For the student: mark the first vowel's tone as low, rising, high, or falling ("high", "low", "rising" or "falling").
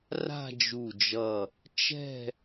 falling